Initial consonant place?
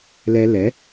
alveolar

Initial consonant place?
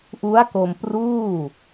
glottal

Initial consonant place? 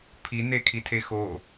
labial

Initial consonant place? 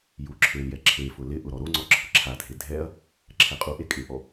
palatal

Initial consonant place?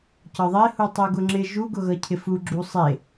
palatal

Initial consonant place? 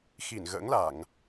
velar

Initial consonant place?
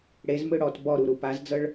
retroflex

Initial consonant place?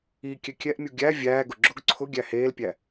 velar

